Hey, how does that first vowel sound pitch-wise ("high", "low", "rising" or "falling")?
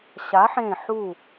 rising